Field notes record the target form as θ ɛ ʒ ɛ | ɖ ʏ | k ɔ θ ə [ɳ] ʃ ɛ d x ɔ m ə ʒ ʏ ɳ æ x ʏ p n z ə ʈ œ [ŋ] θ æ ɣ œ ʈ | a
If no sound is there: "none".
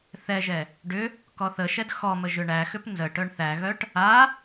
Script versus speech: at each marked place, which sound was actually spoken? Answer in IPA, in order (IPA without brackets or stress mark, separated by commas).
none, ɳ